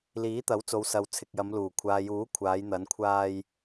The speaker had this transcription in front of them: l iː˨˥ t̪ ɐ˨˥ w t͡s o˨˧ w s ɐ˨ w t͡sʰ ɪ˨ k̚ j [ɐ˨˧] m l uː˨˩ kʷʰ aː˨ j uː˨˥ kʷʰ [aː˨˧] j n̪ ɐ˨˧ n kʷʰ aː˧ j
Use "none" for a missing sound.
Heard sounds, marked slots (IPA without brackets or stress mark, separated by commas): ɐ˨˧, aː˨˧